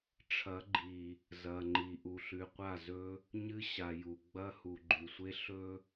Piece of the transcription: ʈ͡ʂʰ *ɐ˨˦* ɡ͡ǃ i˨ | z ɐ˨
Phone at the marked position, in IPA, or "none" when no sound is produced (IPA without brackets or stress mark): ɐ˨˦